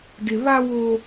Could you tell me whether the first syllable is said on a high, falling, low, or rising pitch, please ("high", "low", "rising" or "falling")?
low